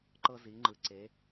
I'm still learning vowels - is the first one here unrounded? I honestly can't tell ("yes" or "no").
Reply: yes